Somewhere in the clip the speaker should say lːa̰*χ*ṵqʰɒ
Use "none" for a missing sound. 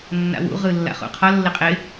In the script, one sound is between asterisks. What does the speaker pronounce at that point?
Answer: χ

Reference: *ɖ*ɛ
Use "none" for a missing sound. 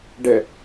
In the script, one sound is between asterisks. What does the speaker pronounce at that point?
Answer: ɖ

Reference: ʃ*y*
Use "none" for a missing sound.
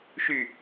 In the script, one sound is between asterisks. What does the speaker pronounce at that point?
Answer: y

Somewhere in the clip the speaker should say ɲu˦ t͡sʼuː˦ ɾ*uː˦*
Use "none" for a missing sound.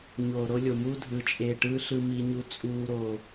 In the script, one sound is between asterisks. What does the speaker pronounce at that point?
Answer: oː˦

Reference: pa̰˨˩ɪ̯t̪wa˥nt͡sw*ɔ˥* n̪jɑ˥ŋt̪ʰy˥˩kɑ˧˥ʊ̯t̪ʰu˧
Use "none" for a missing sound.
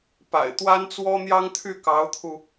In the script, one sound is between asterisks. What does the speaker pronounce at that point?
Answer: ɔ˥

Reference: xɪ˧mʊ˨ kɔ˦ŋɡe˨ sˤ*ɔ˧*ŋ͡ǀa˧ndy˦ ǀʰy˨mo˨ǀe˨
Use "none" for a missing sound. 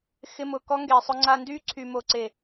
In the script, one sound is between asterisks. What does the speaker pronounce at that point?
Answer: ʊ˧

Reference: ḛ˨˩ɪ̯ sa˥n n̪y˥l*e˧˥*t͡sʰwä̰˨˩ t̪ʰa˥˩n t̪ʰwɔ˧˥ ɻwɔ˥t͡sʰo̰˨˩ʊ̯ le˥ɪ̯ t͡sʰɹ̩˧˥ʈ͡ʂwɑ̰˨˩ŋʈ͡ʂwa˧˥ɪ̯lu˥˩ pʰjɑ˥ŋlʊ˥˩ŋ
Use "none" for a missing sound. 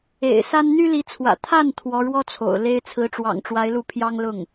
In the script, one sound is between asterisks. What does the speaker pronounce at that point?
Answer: i˧˥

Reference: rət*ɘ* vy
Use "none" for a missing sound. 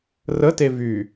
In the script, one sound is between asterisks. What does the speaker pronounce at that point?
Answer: e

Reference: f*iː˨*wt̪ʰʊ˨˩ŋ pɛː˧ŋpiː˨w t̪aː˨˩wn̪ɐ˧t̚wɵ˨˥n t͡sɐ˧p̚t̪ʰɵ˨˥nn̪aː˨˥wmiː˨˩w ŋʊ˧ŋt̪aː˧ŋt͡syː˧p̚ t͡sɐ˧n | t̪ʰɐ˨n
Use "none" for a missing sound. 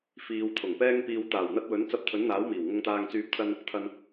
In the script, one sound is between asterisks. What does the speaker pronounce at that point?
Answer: iː˨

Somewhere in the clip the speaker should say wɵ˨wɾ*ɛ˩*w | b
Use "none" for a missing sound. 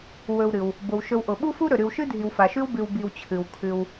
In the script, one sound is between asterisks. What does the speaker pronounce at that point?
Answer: ɨ˩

